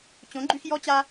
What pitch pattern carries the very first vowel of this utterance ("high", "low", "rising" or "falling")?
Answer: rising